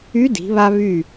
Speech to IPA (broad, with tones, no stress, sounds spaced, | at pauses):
y˧˥ d i̤˩˧ β a˧ β y˧˩